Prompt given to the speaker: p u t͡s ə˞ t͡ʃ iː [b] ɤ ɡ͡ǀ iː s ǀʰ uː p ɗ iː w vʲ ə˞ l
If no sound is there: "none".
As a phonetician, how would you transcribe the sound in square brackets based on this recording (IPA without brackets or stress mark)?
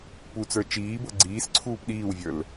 b